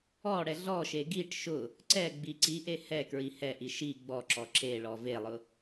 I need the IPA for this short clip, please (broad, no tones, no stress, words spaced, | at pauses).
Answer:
ɔɽɛ ɮɔʃe ɡiʈ ʃʊ | ǀɛɡ͡bi ǀiʔe hɛ kɹihɛʔi ʃi ɡ͡bɔǁɔ ǁeɭɔ velˠʊ